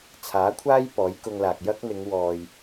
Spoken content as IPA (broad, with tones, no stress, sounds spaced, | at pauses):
t͡sʰ aː˨˥ kʷʰ aː˥ j p ɔː˨˥ j k ʊ˧ ŋ l aː˨ k̚ j ɐ˥ k̚ n̪ ɪ˨˧ ŋ w ɔː˨ j